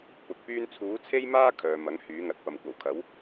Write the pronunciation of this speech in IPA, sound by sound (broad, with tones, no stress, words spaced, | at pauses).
pʊ˨˥k̚pyː˥n t͡sʰuː˨˥t͡sʰe˥jmaː˥ kʰœː˨mɐ˨˥ŋ hyː˨˥ŋɐ˨˥t̚pɐ˨m kʷɐ˨˩wkʰɐ˨˥w